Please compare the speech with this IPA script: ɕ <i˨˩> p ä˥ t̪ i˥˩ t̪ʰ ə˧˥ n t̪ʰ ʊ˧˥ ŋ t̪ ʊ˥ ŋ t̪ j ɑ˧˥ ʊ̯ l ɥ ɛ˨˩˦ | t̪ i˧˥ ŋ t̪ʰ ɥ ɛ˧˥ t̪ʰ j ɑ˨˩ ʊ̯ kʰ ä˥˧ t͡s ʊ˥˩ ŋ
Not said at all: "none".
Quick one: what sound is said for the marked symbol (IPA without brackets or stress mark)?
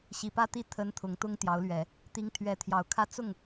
i˨˩